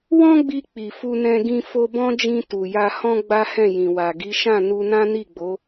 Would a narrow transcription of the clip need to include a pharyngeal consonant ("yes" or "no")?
no